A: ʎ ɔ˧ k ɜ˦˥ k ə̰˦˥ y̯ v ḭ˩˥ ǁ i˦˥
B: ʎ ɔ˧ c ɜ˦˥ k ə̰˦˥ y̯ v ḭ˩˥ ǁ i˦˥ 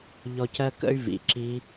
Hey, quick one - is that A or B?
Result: B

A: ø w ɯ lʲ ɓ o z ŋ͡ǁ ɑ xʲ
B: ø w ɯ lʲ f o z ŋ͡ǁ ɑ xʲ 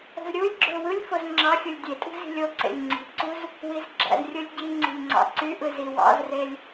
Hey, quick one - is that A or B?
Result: B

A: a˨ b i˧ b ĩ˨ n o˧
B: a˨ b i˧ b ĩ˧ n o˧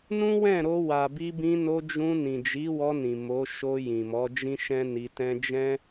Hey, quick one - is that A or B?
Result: B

